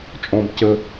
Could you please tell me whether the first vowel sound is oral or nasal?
nasal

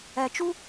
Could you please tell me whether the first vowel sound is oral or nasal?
oral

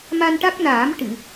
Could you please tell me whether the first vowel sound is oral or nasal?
oral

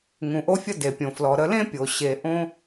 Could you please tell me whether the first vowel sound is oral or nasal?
nasal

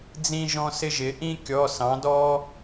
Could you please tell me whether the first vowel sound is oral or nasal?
nasal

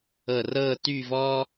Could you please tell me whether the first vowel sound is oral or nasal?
oral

